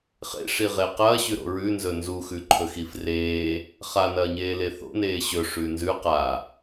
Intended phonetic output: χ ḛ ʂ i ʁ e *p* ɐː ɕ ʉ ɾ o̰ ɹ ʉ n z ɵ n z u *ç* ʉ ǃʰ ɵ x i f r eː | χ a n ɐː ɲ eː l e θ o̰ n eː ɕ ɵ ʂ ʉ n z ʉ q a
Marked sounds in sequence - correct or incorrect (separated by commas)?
incorrect, incorrect